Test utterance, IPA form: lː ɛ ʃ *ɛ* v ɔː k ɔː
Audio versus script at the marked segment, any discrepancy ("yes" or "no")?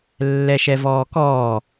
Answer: no